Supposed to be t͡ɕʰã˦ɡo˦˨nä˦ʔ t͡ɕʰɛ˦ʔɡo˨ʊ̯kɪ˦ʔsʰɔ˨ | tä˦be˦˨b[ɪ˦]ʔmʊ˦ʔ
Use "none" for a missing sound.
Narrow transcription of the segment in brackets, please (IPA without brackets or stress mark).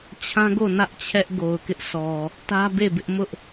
ɪ˦